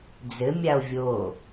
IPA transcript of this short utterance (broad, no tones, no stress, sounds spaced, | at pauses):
d͡z ɘ mʲ a o̯ vʲ o